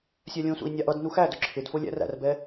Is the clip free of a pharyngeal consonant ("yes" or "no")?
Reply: yes